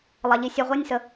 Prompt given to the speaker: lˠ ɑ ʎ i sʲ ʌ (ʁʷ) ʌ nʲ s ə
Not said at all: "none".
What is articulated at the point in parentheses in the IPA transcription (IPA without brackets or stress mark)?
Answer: ʁʷ